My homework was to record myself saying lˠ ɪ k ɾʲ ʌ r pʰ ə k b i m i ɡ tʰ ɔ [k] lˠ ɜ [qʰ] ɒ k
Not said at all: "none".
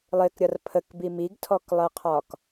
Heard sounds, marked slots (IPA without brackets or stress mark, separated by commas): k, qʰ